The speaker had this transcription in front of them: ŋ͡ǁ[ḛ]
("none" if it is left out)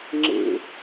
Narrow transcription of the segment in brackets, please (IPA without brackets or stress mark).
ḛ